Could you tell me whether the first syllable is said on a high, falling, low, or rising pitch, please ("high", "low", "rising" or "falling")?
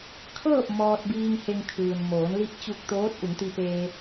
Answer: falling